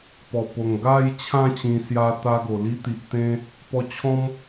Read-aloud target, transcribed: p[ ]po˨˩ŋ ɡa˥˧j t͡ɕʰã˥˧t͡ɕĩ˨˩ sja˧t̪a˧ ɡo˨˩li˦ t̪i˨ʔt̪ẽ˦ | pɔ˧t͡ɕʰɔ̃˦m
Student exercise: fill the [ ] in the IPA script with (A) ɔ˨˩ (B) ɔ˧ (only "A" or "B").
A